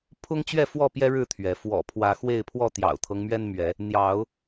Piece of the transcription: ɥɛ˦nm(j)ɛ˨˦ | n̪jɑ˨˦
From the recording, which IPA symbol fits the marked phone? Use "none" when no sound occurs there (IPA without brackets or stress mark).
ɥ